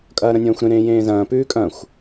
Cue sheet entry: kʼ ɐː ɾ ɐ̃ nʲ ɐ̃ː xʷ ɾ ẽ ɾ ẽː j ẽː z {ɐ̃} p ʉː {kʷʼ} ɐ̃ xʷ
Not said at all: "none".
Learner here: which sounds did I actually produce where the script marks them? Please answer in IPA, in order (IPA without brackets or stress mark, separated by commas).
ɐ̃ː, kʼ